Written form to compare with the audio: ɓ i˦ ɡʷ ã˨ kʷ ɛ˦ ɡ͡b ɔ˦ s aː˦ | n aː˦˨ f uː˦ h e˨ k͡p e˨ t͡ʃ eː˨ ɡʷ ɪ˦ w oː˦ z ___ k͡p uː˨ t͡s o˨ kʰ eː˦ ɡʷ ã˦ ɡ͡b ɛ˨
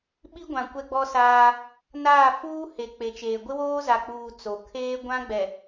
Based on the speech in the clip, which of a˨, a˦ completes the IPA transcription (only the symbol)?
a˨